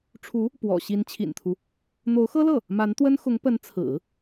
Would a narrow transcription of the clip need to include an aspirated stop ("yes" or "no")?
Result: yes